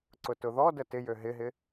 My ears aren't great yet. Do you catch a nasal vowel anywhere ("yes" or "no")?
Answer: no